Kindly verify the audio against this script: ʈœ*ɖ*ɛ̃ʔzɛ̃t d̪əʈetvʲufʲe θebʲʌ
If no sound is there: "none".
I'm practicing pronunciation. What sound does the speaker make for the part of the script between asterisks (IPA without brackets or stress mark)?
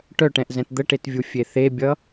ʈ